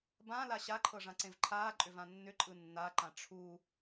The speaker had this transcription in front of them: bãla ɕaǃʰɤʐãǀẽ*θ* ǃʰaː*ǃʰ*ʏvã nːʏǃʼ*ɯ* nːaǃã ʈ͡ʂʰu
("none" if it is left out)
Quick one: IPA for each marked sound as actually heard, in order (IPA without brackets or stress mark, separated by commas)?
v, ǃʼ, ɯ